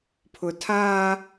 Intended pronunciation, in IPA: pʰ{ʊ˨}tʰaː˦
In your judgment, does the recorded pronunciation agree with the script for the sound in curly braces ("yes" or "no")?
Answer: yes